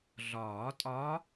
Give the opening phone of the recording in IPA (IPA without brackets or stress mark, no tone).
ɮ